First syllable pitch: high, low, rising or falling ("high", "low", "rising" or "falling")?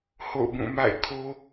falling